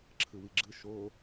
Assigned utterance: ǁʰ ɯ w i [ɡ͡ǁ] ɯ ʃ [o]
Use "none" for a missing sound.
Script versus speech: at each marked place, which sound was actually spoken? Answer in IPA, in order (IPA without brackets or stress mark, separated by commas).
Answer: ɡ͡ǁ, o